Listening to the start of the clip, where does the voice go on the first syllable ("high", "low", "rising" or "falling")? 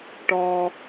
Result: high